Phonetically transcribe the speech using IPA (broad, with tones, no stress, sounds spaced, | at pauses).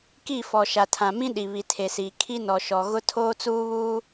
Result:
k i˦˨ f ɔ˨ ʃ a˨ tʰ ã˨ m ĩ˦ ɗ i˨ β i˨ tʰ e˨ s iː˨ kʰ i˦ n ɔ˨ ʃ ɔ˨ ɣ ʊ˦ tʰ oː˦ t͡s uː˦ β uː˦